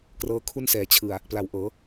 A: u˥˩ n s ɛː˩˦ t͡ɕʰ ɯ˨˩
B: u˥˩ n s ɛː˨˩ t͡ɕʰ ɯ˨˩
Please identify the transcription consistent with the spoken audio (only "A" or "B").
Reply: A